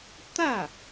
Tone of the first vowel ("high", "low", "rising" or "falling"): falling